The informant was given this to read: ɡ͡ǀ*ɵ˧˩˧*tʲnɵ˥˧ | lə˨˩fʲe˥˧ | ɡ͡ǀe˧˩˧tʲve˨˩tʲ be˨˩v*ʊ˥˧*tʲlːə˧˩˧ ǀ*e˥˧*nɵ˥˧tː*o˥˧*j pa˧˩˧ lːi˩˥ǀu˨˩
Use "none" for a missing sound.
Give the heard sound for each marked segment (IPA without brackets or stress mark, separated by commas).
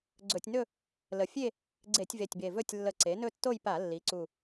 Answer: ɵ˧˩˧, ɵ˥˧, e˩˥, o˥˧